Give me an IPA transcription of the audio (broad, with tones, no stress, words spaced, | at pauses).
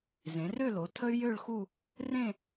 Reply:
zẽ˩˧rø˥˧lo˩˧ tʰə˥y̯jø˥˧ɭxu˥˧ | rẽ˥˧